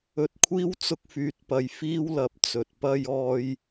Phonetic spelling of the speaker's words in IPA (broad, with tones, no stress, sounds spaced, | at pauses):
ɵ˨ t̚ kʷʰ iː˥ w t͡s ʊ˧ k̚ f yː˨˥ t̚ p ɐ˨ j f iː˥ w l ɐ˨˥ p̚ t͡s ɵ˨ t̚ p ɐ˥ j ɔː˥ j